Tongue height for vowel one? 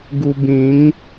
high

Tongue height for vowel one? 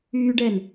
high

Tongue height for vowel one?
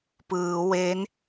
high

